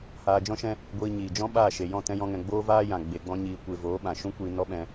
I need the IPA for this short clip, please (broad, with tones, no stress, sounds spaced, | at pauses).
h aː˧ d͡ʒ ɔ̃˦ ʃ ɛ̃˦ | ɡʷ iː˧ ɲ iː˨ d͡ʒ ɔ̃˦ ɓ aː˦˨ ʃ e˨ j ɔ̃˦˨ t ɛ̃˦ j ɔ̃˦ ŋ ɛ̃˧ ɡ͡b oː˦ v aː˦ j ã˨ ɡ͡b e˧ ɡ͡b ɔ̃˦ ɲ iː˧ kʷ e˧ v oː˨˦ ɓ ã˨ ʃ ũ˦ kʷ iː˧ n ɔ˦ ɓ ɛ̃˧